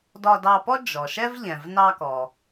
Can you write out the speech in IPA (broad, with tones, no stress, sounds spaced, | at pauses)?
d ɒ˧ d ɑ˧ p ɔ˥ d͡ʒ ɔ˩ ʃ ɛ˥ v ʎ ɛ̃˩ v n ɑ˧ k ɔ˩